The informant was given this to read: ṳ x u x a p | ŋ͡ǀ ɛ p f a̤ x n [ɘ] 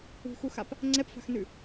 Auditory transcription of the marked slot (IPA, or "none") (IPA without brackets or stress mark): ʉ